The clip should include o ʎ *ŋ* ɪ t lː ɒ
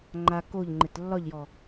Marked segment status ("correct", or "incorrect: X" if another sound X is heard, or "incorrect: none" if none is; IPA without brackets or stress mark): incorrect: ŋ͡ǃ